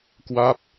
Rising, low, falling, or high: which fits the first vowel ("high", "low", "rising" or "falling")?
falling